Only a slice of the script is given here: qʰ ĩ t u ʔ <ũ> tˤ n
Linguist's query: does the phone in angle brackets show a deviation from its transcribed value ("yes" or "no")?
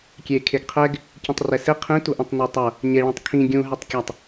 no